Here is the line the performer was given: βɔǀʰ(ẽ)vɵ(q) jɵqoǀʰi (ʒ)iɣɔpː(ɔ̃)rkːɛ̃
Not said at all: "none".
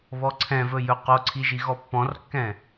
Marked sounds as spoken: ɛ̃, none, ʒ, ɔ̃

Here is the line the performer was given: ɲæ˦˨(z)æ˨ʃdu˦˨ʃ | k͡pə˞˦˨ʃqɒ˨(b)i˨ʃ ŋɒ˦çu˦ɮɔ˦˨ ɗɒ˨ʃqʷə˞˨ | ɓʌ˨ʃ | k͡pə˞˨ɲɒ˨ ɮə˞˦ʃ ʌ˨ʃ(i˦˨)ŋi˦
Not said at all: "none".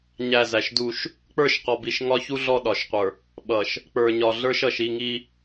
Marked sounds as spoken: z, b, i˦˨

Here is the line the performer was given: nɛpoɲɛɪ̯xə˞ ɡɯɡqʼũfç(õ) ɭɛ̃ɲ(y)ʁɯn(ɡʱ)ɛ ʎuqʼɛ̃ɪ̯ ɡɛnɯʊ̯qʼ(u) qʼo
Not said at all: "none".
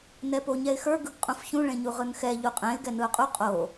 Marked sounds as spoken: ũ, u, x, u

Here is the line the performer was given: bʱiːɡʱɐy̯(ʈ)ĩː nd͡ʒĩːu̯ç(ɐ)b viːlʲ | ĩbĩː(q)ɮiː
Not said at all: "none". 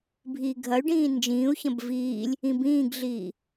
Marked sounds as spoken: ɖ, ɐ̃, ɡ

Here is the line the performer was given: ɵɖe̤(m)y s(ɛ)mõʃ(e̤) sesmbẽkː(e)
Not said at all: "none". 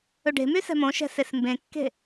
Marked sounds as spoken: m, ɛ̤, ɛ̤, e̤

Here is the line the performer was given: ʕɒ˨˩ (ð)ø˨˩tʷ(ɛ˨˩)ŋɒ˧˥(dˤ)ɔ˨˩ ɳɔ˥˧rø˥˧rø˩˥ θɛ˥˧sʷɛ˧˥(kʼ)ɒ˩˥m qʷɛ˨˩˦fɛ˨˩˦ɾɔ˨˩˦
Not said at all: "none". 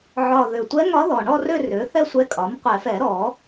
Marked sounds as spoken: ð, ɛ˧˥, ð, kʼ

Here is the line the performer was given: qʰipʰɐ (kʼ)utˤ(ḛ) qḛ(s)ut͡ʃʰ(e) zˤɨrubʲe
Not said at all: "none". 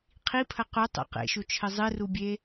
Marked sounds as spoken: q, ɛ̰, ʃ, ɘ

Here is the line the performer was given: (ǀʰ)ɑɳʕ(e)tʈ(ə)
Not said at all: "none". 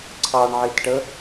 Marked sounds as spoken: ǀʰ, i, ə

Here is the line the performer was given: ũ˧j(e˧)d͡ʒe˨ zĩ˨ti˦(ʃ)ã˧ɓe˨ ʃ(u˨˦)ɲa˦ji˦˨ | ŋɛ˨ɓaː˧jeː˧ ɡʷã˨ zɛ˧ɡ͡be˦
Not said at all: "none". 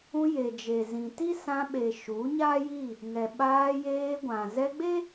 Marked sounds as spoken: e˨, s, u˨˦

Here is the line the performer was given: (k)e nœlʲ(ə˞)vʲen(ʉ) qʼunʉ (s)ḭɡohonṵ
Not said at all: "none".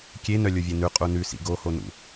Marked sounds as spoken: kʲ, ə˞, ʉ, s

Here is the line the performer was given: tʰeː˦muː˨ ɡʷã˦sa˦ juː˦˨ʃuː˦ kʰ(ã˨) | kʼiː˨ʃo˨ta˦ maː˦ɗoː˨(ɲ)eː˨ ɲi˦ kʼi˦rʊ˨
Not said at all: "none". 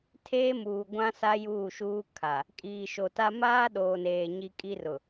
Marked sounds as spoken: a˨, n

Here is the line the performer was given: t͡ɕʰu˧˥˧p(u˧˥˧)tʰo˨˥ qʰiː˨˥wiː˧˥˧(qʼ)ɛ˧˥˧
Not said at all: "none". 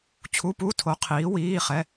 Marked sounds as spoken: u˧˥˧, χ

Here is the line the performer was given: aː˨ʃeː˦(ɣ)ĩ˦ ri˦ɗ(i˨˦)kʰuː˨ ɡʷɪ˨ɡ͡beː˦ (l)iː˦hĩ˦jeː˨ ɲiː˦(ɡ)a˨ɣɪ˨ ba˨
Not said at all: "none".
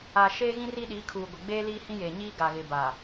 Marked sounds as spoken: ɣ, i˨˦, l, ɡ

